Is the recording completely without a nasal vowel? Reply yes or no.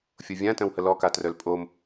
no